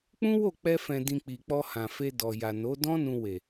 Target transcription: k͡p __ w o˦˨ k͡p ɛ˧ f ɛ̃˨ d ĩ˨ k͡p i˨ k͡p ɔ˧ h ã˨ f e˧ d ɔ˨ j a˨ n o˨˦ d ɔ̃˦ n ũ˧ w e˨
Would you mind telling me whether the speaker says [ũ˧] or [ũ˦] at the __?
ũ˦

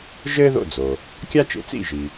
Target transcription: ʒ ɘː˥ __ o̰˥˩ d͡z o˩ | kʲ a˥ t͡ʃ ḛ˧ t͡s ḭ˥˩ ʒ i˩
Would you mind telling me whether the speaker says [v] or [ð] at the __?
ð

